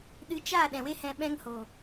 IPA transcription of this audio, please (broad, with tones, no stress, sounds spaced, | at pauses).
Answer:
ɗ ɨ˨˦ t͡ʃ a˦˨ ɗ ɛ̃˨ w e˦ h ɛ̃˧ ɓ ɛ̃˦ ŋ h o˨